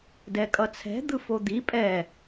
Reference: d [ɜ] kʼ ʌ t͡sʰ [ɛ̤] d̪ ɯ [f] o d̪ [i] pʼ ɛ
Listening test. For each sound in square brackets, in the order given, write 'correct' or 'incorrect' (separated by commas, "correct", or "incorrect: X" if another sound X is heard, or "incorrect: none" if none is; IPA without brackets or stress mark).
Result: incorrect: ɛ, correct, correct, correct